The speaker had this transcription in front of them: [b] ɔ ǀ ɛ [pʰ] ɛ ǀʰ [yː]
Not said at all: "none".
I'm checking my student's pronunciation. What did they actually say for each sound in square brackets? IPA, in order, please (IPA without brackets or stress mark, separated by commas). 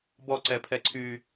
b, pʰ, yː